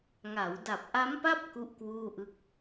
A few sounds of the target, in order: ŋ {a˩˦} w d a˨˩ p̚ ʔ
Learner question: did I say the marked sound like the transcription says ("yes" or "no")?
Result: yes